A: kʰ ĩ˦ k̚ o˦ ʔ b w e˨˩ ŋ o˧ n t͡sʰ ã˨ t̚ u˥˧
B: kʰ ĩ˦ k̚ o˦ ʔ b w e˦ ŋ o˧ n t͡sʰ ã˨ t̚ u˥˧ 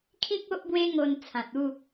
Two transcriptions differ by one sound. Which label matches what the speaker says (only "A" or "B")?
B